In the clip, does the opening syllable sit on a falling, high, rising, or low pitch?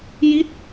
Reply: falling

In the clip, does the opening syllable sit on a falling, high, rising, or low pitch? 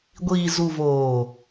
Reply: low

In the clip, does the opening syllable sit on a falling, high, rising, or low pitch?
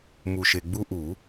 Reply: low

